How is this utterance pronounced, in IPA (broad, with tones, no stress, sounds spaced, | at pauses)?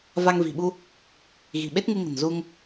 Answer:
v a˧ ŋ v i̤˨˩ ɓ u˧ | ɣ i̤˨˩ ɓ e˦˥ t̚ ŋ ɨ˧ ŋ ə̤˨˩ n z u˧ ŋ